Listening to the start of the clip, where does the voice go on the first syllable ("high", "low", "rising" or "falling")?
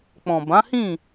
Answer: low